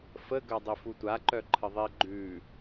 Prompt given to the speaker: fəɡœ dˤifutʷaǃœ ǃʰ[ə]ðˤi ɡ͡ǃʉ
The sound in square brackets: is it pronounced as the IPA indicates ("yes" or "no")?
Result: yes